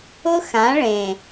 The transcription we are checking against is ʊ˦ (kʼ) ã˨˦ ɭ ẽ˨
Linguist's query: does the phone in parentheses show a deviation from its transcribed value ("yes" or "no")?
yes